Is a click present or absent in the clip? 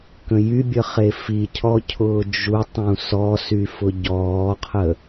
absent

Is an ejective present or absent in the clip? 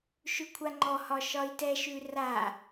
absent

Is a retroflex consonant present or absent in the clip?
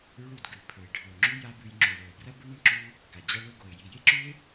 present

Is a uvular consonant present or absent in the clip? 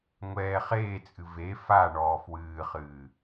present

